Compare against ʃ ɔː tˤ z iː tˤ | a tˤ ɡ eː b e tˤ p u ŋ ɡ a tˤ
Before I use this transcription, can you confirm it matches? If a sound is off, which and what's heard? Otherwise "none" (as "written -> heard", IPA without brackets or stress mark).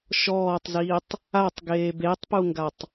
none